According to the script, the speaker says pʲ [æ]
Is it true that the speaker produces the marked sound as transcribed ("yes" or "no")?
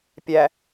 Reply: yes